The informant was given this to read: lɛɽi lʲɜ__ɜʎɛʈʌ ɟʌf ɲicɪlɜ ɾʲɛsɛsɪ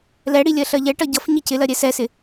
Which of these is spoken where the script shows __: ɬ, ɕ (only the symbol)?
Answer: ɬ